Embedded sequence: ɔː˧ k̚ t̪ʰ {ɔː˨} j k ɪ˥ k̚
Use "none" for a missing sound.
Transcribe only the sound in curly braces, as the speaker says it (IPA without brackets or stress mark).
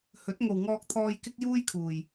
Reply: ɔː˧